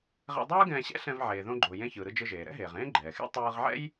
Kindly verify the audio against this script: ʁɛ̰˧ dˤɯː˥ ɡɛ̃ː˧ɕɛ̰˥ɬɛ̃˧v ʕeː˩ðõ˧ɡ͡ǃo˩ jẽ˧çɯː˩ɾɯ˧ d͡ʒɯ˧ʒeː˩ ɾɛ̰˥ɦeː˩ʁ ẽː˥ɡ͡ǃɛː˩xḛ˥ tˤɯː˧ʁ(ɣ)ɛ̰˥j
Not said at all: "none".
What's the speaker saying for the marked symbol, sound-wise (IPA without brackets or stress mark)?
ʕ